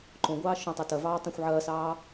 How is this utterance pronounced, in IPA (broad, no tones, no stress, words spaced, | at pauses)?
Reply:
ǃõɡʷɑː ʃõtˤ œtɐvɑː tˤœ̃xʷʕɐːsɑː